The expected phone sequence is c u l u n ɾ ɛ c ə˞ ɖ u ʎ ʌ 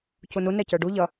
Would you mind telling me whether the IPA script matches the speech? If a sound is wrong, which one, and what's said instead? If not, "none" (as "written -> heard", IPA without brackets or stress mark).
l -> n